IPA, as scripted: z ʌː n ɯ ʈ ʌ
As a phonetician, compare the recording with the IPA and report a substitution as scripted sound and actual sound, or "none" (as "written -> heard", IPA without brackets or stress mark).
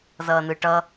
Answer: none